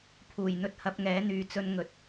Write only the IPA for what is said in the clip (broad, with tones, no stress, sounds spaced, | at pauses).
pʰ uː˨˩ j n̪ ɵ˧ t̚ h ɐ˨˥ p̚ ŋ ɛː˨˥ n̪ yː˨ t͡s ɵ˧ n ŋ ɵ˨ t̚